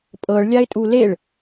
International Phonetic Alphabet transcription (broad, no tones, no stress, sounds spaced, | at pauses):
pʼ ɤ ɭ lʲ a ɪ̯ tʼ u l e ɭ